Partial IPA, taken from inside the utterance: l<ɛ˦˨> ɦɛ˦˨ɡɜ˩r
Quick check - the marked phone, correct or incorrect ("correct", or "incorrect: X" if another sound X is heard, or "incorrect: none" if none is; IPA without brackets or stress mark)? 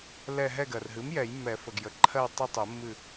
correct